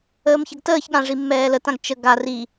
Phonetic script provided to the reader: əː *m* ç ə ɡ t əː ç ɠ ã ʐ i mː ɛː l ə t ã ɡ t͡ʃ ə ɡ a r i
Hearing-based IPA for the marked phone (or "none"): m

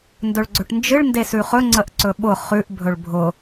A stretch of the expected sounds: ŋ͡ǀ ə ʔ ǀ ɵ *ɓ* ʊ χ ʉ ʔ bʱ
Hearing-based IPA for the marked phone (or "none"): ɓ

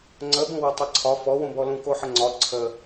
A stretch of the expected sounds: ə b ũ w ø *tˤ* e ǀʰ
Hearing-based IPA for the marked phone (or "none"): tˤ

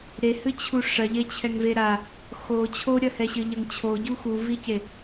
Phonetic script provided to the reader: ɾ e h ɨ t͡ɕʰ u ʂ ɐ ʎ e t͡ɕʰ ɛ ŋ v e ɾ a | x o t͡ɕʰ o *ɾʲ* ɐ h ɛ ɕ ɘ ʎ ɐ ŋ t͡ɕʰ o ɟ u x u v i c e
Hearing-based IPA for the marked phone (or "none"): ɾʲ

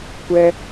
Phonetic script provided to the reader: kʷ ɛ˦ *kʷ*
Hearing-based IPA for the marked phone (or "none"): none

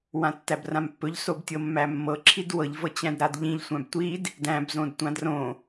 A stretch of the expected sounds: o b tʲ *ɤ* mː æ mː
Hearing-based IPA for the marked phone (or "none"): ɤ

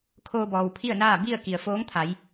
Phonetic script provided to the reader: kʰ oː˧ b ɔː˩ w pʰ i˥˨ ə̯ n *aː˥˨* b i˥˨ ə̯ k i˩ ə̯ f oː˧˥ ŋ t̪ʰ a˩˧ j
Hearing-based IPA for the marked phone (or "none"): aː˥˨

